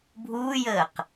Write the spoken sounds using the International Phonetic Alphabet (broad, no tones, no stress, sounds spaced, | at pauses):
bʱ uː j əː q